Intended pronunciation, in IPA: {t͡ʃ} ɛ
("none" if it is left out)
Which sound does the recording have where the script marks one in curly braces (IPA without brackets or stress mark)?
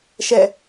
ʃ